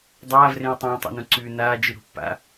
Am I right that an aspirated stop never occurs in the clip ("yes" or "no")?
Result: yes